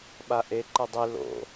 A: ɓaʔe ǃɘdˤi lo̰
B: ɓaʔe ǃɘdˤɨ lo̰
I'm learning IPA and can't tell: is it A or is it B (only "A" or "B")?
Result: A